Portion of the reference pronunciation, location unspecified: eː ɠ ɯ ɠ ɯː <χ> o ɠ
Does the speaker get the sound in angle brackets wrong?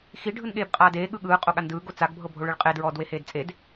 yes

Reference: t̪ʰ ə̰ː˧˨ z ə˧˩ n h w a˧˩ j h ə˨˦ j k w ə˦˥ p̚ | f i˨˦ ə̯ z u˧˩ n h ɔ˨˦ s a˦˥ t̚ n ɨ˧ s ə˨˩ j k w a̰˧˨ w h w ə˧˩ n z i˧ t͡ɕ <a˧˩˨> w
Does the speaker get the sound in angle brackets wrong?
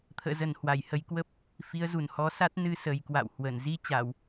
no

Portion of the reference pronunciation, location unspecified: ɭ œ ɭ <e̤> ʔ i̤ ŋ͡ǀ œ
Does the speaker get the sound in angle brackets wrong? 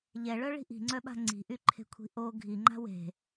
yes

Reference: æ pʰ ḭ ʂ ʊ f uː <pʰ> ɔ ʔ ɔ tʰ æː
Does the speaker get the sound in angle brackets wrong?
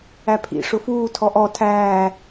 yes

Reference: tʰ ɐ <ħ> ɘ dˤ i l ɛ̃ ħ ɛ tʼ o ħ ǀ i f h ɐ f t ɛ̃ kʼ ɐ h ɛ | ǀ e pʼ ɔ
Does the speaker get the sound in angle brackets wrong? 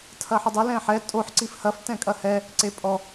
no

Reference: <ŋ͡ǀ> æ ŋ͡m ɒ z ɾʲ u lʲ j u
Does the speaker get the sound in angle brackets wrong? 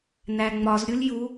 yes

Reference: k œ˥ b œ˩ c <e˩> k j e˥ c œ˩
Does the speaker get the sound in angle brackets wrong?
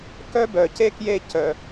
yes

